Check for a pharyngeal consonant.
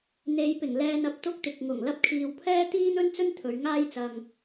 absent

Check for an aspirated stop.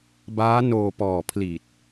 present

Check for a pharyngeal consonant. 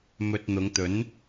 absent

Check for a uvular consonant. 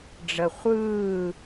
present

